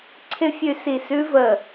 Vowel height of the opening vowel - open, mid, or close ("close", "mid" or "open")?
close